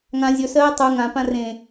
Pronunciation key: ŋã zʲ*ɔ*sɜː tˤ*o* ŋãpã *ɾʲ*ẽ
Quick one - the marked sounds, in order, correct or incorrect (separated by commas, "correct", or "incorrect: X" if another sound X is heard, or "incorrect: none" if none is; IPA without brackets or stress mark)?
incorrect: ɵ, incorrect: u, incorrect: r